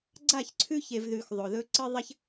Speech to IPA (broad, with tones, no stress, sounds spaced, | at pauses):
ɡ͡ǀ a˦˨ ç ǀʰ ʉ˦ ç e˨ v ð ʉ˨ x ðˤ o˨ ð ɵ˦ ǀ ɨ˦ ðˤ ɐ˦ ç